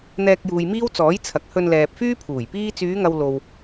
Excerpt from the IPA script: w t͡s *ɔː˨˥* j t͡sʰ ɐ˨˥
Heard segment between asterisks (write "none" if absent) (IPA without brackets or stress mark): ɔː˨˥